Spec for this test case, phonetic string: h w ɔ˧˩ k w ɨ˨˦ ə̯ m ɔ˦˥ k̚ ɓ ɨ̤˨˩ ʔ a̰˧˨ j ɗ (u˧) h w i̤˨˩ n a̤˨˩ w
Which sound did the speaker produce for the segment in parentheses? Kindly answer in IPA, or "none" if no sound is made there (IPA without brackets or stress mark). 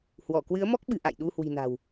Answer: u˧